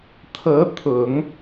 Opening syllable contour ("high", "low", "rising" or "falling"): rising